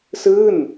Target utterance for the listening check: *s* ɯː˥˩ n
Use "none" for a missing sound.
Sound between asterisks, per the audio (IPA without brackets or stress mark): s